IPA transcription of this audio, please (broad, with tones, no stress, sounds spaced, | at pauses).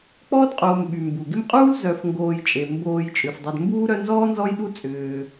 k͡p ɔː˥ d qʼ oː˨ m ɓ y˩ m b u˩ ɡ ɪ˦ m qʼ uː˥ l z œ˨ f ŋ ɡ oː˨ j t͡ʃʼ e˩ m b oː˨ j t͡ʃʼ ʏ˩ f dˤ ɐ˨ d m b uː˥ ɾ œ˦ n z ɔː˥ n z ɔ˦ j ɗ u˦ t͡sʼ ʏː˨